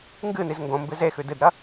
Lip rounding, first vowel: unrounded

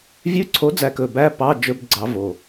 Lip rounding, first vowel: rounded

